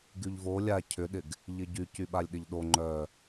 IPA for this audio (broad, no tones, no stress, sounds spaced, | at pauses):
ɡ y ʎ v o lʲ a cʰ ʏ ɗ ɪ ɡ | ʎ ɪ ɟ y c y ɓ a lʲ ɗ ɪ ʎ ɗ o ŋ͡ǃ œ